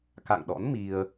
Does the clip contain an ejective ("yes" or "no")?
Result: no